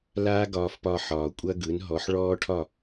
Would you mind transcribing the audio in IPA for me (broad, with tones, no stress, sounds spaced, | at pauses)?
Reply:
l aː˥ ɡ ɒː˧ f p ɒ˧ ħ ɒː˩ kʷʼ ɐ˥ ɡ ɯ˩˥ n ɦ ɔ˩˥ ħ ɭ ɔː˥ ʈʰ ɒ˥˩